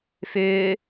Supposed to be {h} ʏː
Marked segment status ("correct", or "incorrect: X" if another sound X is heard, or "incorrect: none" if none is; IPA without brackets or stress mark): incorrect: f